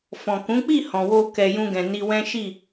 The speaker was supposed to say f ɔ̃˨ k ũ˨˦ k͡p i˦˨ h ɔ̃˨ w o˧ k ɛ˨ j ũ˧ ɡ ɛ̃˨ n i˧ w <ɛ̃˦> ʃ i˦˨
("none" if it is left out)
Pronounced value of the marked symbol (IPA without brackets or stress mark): ɛ̃˦